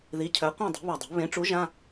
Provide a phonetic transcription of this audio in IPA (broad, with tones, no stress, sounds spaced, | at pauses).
ð i˩˥ cʰ œ˩˥ qʷ œ̃˥˨ dˤ ṳ˩˥ β a˨ dˤ o̤˩˥ β ẽ˩˥ ʈ͡ʂ u˩˥ ʒ ã˧˥˧